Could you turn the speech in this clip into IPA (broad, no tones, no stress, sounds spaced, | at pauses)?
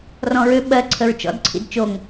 r ɔ̃ ɹ ø ɓ ɜ ǀʰ ə ɹ t͡ʃ ɔ̰ d ǀʰ ḭ d t͡ʃ o ŋ